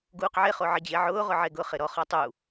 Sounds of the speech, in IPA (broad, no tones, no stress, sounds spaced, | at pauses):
ɡ uː q ʕ e χ o ʕ ɪ d͡ʑ e ʕ ʊː ʁ ʊ ʕ e ɡ ʊ χ ɪ ɾ ɔ χ ɔ tˤ u